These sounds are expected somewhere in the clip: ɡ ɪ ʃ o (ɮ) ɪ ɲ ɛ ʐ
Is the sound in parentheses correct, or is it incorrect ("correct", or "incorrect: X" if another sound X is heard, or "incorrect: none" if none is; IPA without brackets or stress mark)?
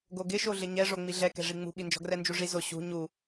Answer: correct